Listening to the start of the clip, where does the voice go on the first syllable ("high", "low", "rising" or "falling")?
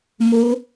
high